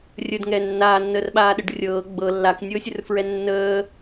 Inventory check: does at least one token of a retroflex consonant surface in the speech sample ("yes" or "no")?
yes